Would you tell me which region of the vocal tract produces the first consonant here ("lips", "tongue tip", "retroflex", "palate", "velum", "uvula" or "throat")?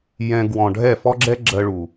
palate